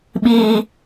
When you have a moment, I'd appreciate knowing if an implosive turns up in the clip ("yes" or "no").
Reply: yes